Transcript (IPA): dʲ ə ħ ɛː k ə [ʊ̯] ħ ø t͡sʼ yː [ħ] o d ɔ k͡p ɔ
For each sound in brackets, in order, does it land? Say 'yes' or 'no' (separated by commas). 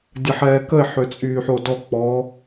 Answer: no, yes